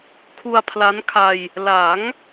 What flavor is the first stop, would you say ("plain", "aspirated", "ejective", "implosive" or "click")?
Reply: aspirated